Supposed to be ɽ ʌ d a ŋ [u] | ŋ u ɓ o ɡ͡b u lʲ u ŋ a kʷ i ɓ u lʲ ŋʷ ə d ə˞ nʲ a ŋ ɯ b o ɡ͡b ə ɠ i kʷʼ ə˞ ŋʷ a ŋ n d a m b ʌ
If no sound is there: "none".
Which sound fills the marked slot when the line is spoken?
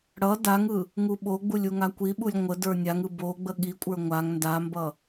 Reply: ɯ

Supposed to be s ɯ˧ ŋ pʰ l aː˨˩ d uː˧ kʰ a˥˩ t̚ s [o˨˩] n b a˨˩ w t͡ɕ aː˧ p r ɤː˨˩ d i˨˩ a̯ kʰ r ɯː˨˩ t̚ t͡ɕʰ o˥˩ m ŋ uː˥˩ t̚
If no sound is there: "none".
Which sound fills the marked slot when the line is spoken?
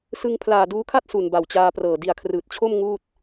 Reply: u˨˩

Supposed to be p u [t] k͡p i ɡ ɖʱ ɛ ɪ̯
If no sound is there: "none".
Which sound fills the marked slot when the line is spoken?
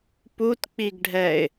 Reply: t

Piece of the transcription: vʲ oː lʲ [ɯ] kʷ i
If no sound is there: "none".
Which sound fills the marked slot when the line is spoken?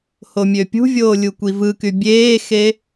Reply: u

